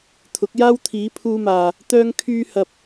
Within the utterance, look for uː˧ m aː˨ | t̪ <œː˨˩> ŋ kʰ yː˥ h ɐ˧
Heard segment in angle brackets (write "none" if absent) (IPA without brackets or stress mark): œː˥